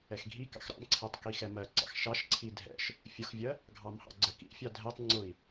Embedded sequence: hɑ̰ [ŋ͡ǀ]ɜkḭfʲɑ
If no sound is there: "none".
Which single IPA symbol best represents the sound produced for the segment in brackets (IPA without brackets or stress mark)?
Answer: ɡ͡ǀ